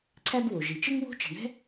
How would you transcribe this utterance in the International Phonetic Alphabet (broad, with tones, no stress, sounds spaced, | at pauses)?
ǀʰ æ˥ b w o˩ ʒ i˩ t͡ʃ ɘ˥ ŋ w o̤˥ t͡ʃ ɛ̤˩ ɳ ɛ̤˥